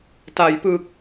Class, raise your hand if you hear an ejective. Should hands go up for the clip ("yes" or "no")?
no